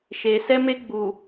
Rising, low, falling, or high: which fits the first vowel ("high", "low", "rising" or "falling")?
low